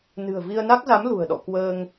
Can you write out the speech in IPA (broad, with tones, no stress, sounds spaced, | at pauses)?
n ɨ̤˨˩ ə̯ v i˧ ə̯ n a˦˥ k̚ z a˨˦ m l ṳ˨˩ ə̯ ɗ ɔ̰˧˨ k w əː˧ ŋ